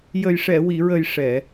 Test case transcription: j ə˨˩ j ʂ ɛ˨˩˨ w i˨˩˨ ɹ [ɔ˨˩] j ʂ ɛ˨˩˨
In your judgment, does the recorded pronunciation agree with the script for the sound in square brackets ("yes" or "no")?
no